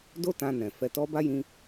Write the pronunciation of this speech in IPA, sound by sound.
d o˦ t ã˧ n ɛ̃˨ f ɛ˧ t ɔ˧ b a˦ j ĩ˧

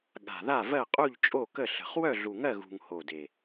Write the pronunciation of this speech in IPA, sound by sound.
ɠ a̤˨˩ ð a˥˨ v ɜ˥˨ qʼ u˥˨ ʎ t͡ʃʼ o˥˨ k ə˥˨ ɬ ə̤˨˩ χ w œ˥˨ ɮ u˨˩ ŋ ɜ˥˨ ɣ ṳ˨˩ ŋ h o˨˩ d e˨˩

